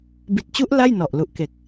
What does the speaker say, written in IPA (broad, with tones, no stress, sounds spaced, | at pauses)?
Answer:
b i˨˩ t̚ t͡ɕ u˦˥ ʔ l a˥˩ j n ɔ˨˩ ʔ l u˨˩ ʔ k e˨˩ k̚